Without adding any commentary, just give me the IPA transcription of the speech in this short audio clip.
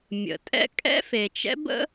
mʲ ə̰˩ tʼ ɛ̰˥ kʼ ɛ̰˥ f e˩ t͡ʃ ɛ̰˥ b ə̰˥

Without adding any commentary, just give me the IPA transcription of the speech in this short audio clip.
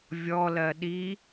vʲ ɔ l ɜ ɗ i

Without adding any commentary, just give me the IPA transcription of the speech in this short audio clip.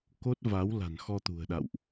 k o˦˥ t̚ v a˨˦ w l a̤˨˩ n x ɔ˧ t̪ ṳ˨˩ ə̯ ɗ a̰˧˨ w ʔ

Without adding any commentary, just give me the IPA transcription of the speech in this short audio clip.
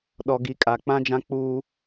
ɗ ɔ˨ ɡ i˨ kʼ a˨ k͡p ã˦ d͡ʒ ã˦ k͡p uː˦

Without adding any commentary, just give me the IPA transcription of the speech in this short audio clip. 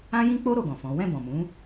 ã˦ j ĩ˦ k͡p o˦ ɾ o˦˨ ɡ ɔ̃˨ f ɔ̃˨˦ w ɛ̃˦˨ b ɔ̃˨ m ũ˨˦

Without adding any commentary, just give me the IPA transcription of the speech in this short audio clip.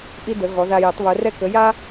ʔ i˥ d ə˩˥ ɣ ɔ˩˥ ð a˧ j ə˩˥ tˤ β œ˩˥ r ɛ˥ k ə˩˥ j a˥

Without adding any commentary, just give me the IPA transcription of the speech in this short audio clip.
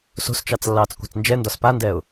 s o̤ s t͡ʃ ɑ t͡s lː ɑː t͡s kʷ ɑ̤ t͡s n d͡ʒ ɛ n d ɒ s p a n d ɛ ʊ̯

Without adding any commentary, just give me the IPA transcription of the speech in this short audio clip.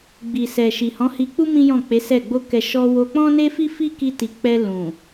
ɡ͡b i˨ s ɛ˨ ʃ i˨ h ɔ̃˨˦ h i˧ k͡p u˦ m ĩ˦ j ɔ̃˦˨ k͡p e˨˦ s ɛ˦˨ ɡ͡b o˧ k ɛ˨ ʃ ɔ˧ w o˧ k͡p ɔ̃˦ n e˦ f i˦ f i˦ k i˧ t i˨ k͡p ɛ˧ l ũ˨

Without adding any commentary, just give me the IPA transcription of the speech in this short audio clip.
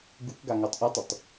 ɡ u k ɡ a ŋ ɔ tˤ ʔ u tˤ ɵ tˤ

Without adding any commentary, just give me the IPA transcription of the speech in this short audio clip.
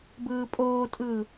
b ɯː pʼ oː tʼ ɯː

